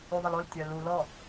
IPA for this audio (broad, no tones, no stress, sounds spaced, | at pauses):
y ðˤ ə l o l tʲ œ l u l ɔ